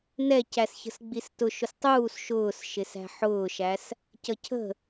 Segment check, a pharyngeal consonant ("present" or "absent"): present